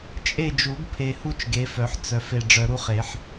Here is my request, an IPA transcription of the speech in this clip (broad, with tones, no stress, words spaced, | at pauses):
t͡ʃʼe˦˨d͡ʒu˨˩˦ɡpʰe˨hu˦t͡ʃ ɡe˨˦fœ˨˩˦ħ t͡sœ˨˦fe˦˨ ɖ͡ʐœ˨ɾu˦χe˨˩˦ħ